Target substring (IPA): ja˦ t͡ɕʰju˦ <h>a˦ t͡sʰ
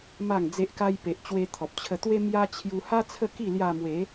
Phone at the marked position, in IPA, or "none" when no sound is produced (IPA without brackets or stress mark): h